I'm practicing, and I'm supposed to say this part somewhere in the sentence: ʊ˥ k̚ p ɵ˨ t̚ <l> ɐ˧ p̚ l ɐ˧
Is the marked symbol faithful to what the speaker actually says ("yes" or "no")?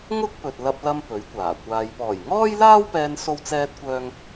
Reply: yes